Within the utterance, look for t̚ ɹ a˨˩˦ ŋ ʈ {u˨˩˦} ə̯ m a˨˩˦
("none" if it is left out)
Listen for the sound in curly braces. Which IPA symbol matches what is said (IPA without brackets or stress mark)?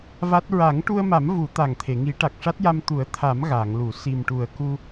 u˧